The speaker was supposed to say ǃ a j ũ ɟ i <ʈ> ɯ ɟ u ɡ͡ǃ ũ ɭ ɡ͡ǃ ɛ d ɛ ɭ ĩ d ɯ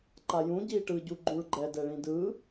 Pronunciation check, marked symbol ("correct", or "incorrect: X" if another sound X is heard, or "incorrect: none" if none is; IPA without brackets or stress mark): correct